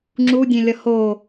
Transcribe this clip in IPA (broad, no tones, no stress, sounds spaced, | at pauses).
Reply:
ŋ͡ǁ u dʲ ẽ lʲ ʌ h o